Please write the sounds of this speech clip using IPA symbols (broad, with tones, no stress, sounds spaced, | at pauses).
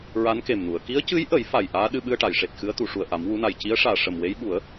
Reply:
ɹ a˧˥ n k e˨˩ m n u˨˩˨ ə̯ k i˧˥ ə̯ c ɨ˧˥ j ʔ ə˨˩˦ j f a˨˩ j ʔ aː˧˥ ɗ ɨ˧ ɓ ɨ˧ ə̯ ʈ a˨˩˨ j ʂ e˨˩ t̚ x ɨ˧˥ ə̯ t̪ u˨˩˨ ʂ u˨˩ ə̯ ʔ a˨˩˦ m w u˧˥ n a˨˩ j c i˧˥ ə̯ ʂ aː˨˩ ʂ ə˨˩ m w e˧˥ j ɓ u˨˩˦ ə̯